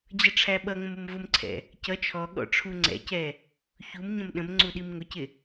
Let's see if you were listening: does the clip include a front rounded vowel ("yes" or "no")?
no